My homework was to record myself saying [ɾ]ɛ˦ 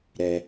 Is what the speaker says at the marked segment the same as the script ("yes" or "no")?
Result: yes